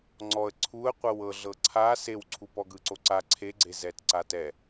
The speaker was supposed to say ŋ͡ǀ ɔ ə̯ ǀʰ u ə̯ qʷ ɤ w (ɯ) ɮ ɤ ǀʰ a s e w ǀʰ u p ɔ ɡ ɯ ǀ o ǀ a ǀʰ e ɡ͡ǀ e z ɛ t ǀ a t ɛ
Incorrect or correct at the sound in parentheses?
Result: incorrect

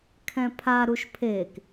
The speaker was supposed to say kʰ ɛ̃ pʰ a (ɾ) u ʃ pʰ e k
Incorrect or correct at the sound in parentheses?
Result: correct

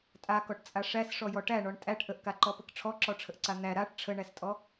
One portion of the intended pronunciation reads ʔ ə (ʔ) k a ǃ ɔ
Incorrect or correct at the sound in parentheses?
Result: correct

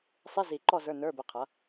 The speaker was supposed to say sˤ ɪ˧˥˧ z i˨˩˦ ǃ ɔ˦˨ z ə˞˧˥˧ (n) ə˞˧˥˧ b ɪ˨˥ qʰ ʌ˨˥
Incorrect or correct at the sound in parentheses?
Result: correct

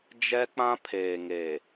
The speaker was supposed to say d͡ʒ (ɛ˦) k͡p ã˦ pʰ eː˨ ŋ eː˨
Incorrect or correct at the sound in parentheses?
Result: correct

